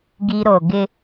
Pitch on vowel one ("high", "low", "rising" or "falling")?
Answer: high